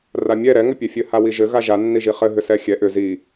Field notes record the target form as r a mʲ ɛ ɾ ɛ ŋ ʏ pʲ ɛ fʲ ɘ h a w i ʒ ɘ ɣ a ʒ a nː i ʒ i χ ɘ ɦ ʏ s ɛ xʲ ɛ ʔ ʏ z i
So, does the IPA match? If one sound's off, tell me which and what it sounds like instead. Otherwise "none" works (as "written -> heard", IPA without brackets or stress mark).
none